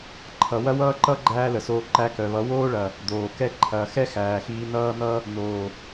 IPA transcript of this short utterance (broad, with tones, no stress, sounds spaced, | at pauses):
ǃʰ ʌ˨ w ɐ˦ w ʌː˦ ǃ ʌ˦ ɡ͡ǃ æː˦ l ə˨ s oː˧ ǃ æ˧ k œ˨ β ʌ˨˦ w oː˦ ɭ ɐ˨ | d̪ oː˨ k ɛ˦ ǃʰ ɐː˨ x ɛ˦ x æː˨ x iː˧ n ʌː˦ n̪ ʌ˦ | n oː˨